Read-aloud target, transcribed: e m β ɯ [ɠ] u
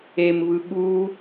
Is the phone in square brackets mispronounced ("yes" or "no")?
no